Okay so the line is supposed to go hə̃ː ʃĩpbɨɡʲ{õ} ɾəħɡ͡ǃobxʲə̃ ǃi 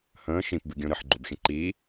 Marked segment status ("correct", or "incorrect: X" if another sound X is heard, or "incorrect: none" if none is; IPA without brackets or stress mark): correct